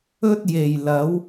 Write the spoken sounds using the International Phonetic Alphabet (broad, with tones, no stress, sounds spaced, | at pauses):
ɵ˥ t̚ j e˨˩ j l ɐ˨˥ w